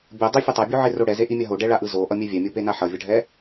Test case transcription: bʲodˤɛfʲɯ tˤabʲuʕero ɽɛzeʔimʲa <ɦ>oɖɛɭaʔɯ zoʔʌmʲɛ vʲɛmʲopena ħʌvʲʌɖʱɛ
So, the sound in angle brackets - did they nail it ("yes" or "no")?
yes